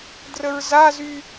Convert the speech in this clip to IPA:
d r ə ɹ z a z y

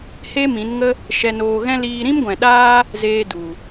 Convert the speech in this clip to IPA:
h e˦ m ĩ˨˦ n ŋ ə˦ | ʃ ɛ˧ n oː˧ ɣ ɛ̃˦ l iː˧ ɾ ĩ˦ m ɡʷ ɛ̃˨ ɗ aː˦ | z eː˧ d u˨

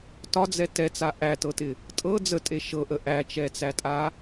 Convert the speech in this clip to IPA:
t ɒ d͡z ɛ t ɛ t͡s a ʔ æ t ɤ t ɪ | tʼ ɤ d͡z ə tʼ e ʃ ɤ ʔ ə ʔ æ t͡ʃ ɛ t͡s æ tʼ a

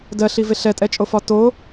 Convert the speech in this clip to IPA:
d ɜ ɬ i v e ɬ ɛ tʼ ɛ t͡ʃʼ o f ɒ t o

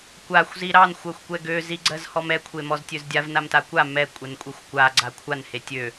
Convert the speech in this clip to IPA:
kʷ a xʷ z i ɾ ɑ n xʷ ɜ xʷ kʷ ɛ ɡ ø z i ɡ͡ǀ ɜ z h ɔ m ɛ kʷʰ e m ɔ z tʲ ø z dʲ a v n a m t a kʷ a m ɛ kʷʼ ɛ n kʷʼ e xʷ kʷ a ɡ͡ǀ a kʷʰ a n h e tʲ ø

